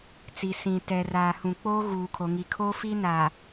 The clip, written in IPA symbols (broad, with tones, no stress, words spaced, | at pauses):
t͡si˨sĩ˨ tɛ˨raː˨ hũ˨ k͡poː˦ɣuː˨kʰo˨ ŋi˨kʰoː˦ fi˦na˨